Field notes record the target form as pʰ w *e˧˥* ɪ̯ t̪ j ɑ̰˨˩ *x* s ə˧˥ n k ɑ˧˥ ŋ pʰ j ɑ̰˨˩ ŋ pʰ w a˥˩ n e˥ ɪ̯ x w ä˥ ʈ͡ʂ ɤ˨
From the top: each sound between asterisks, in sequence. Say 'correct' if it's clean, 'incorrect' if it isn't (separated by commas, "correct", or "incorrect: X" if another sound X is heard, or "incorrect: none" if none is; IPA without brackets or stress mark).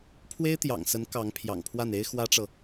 incorrect: e˥, incorrect: ŋ